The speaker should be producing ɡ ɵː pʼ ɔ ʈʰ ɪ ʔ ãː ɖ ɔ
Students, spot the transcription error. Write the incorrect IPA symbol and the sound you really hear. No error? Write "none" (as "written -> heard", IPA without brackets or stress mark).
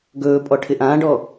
none